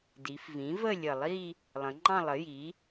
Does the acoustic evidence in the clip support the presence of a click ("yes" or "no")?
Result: yes